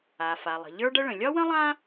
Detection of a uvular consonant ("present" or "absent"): absent